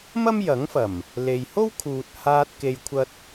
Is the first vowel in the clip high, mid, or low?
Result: low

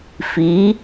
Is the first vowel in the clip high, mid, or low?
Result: high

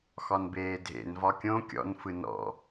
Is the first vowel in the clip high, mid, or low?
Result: low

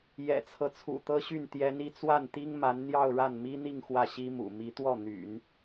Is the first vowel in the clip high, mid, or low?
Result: mid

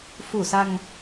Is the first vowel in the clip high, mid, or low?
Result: high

